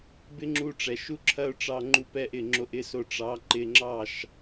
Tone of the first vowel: high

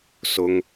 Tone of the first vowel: high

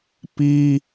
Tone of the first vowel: high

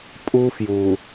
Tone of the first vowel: high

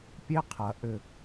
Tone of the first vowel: high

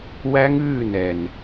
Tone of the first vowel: high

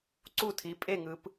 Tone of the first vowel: falling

